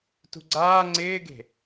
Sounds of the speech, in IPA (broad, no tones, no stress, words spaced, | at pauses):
tṳɡ͡ǀaː ŋ͡ǀɪːɡe̤